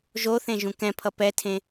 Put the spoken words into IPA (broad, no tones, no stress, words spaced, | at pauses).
ʒoθẽ ʒũkɛ̃pʰʌ pɛtʰẽ